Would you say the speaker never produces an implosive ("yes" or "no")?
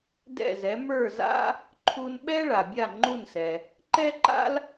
no